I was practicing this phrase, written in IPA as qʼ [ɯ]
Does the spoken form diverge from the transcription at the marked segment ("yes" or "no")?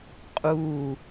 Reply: yes